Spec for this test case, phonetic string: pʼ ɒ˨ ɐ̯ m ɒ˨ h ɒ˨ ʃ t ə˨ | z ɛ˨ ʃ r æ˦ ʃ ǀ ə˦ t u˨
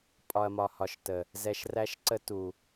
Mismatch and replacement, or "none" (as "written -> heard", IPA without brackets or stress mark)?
none